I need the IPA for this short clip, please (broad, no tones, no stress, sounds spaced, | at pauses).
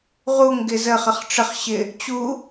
ʁ u ŋ ɡ ɪ z ə χ ə χ ʈ͡ʂ ə χ ɕ ɪ | t͡ɕ u